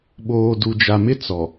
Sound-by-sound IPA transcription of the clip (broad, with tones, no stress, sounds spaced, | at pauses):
ɓ oː˨ d u˨ d͡ʒ a˨ m ɪ˦ t͡s ɔ˨